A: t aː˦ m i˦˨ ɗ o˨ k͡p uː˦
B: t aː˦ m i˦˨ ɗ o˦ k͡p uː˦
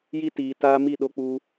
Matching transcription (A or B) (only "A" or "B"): B